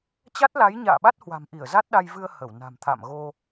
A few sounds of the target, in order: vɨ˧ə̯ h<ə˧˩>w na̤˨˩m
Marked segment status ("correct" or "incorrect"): correct